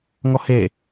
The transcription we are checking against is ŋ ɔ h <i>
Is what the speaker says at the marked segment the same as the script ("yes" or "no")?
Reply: no